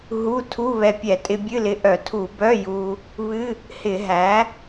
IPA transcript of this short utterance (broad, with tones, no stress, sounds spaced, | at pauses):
ɦ u˧˥˧ tʰ u˧˥˧ β ɛ˧ pʲ ɛ˧˩˧ tʼ ɪ˧ bʲ ɨ˧˥˧ l ɪ˧ ʔ œ˧˩˧ tʰ u˧˩˧ b œ˧˥˧ j u˧ | β ɨ˧˥˧ | h ɪ˧˩˧ ɦ æ˩˥